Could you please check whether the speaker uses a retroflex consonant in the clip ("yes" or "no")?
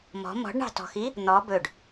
yes